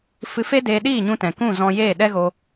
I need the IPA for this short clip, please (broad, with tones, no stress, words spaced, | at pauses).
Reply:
fɨ˧fe˦ deː˧ɗiː˦˨ɲũ˧tɛ̃˨ kũ˦˨ zɔ̃˧jeː˦˨ ɗɛ˦ɣo˧